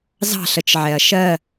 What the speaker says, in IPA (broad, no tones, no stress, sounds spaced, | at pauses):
z ɑ̤ ɬ ə t͡ʃ ʕ ɛ ɐ̯ ʃ ɜ